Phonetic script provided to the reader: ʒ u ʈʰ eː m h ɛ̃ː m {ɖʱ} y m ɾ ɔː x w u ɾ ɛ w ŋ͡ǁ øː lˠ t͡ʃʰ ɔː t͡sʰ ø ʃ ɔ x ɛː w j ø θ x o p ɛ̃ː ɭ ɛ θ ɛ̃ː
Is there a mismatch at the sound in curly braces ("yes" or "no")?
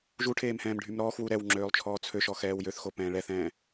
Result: no